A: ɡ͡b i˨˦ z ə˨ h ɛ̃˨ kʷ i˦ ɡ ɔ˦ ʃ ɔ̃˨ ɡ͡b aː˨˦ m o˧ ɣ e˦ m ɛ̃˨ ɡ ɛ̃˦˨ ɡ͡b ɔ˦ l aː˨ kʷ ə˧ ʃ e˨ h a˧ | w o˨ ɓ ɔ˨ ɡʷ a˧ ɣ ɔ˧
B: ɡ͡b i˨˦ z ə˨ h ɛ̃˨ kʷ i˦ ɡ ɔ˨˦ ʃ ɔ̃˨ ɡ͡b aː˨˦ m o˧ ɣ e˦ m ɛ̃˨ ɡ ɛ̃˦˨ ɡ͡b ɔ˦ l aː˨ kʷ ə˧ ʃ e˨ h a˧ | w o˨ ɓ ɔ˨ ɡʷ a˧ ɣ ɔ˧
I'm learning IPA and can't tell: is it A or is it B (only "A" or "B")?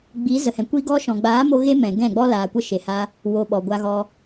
A